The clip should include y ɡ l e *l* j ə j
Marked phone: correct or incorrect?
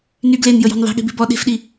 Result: incorrect